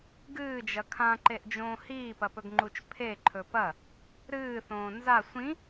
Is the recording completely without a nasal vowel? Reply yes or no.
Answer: no